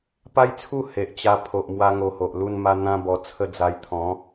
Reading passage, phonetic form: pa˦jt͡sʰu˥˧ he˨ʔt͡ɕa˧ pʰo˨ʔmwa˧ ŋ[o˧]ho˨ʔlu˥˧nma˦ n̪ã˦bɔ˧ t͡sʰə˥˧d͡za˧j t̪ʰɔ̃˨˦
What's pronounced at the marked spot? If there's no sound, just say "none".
o˧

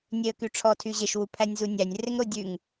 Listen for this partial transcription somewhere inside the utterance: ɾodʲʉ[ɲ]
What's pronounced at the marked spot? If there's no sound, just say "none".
ŋ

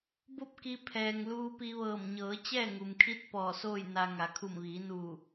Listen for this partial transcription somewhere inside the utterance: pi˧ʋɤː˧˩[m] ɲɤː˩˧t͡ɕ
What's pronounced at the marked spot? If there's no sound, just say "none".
m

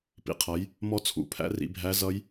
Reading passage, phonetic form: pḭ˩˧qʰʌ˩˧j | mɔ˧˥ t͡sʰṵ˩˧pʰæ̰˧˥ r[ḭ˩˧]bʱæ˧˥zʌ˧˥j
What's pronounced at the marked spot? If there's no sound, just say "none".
ḭ˩˧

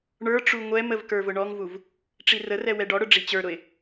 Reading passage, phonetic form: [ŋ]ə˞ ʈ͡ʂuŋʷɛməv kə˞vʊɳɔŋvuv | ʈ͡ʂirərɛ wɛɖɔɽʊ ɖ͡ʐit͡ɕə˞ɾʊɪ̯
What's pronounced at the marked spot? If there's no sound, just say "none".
ɳ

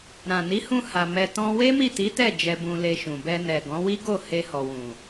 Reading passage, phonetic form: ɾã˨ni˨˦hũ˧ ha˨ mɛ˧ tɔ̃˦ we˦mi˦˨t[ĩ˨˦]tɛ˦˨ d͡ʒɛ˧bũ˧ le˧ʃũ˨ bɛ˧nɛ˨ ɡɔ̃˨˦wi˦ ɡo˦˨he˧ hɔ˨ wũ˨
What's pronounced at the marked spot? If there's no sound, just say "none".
i˨˦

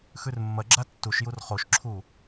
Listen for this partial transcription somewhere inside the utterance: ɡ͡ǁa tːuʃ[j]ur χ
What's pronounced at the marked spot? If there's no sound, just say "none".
j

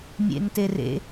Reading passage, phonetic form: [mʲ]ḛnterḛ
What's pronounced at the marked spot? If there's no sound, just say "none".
mʲ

